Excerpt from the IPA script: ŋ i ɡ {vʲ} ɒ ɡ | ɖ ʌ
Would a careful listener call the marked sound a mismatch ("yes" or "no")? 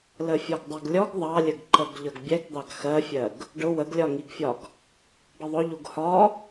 yes